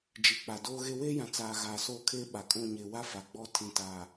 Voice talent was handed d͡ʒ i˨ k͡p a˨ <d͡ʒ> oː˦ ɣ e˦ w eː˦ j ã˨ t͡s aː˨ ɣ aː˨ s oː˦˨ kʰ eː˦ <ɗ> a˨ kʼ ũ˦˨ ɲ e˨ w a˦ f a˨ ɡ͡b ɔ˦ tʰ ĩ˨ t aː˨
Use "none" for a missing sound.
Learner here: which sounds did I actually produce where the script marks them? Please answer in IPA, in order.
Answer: d, ɓ

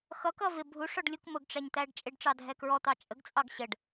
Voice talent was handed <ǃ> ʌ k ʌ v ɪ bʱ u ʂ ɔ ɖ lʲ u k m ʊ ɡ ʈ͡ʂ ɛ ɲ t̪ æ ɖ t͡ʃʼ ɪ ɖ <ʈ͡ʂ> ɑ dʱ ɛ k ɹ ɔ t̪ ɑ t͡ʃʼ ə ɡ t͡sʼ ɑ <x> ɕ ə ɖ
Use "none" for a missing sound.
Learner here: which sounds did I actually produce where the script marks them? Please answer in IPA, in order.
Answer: x, ʈ͡ʂ, ɡ

